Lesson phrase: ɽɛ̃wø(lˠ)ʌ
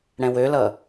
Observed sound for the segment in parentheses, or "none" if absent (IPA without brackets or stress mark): l